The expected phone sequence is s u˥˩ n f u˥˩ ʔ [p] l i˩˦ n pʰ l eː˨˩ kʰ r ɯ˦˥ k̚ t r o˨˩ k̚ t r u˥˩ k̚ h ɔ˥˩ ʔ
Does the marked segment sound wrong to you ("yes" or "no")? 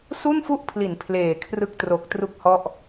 yes